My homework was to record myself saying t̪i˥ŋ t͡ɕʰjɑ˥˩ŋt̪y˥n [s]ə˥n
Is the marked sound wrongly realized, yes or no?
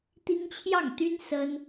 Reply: no